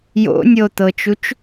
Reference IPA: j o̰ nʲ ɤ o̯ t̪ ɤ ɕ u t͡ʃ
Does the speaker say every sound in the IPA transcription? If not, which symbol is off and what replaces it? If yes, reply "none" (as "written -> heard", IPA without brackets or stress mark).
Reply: ɕ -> t͡ʃ